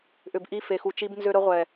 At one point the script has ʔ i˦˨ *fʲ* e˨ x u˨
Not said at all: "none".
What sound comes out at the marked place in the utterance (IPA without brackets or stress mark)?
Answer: f